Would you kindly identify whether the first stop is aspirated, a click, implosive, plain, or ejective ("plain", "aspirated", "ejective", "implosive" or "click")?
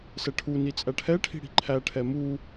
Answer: aspirated